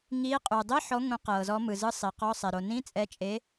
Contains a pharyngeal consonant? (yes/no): yes